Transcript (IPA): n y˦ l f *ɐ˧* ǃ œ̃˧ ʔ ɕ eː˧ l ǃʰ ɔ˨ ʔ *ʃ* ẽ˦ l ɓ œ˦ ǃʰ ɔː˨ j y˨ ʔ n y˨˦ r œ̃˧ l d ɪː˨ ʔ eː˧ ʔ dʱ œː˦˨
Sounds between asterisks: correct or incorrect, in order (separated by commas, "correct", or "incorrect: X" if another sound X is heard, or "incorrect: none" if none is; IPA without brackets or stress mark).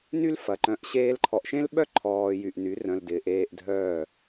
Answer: incorrect: ɐ˨, correct